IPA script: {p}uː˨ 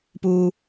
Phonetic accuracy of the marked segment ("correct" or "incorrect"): correct